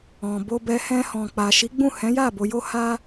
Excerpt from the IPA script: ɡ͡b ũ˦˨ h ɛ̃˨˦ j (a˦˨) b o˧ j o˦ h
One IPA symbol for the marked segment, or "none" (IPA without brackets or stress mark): a˦˨